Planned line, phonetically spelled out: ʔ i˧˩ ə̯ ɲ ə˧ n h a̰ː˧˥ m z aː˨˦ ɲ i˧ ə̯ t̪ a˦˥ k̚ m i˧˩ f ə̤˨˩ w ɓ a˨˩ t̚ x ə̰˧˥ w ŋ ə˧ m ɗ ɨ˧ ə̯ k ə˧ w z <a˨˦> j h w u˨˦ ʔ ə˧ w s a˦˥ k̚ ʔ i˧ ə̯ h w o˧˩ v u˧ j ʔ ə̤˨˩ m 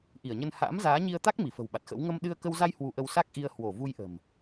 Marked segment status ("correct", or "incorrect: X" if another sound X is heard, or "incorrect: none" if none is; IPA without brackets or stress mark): incorrect: a˧